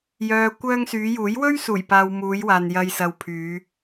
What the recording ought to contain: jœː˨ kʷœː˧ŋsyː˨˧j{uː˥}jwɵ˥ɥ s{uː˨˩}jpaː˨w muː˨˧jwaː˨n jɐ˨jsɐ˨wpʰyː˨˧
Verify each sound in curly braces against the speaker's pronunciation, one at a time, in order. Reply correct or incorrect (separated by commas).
incorrect, correct